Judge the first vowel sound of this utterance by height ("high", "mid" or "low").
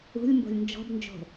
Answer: high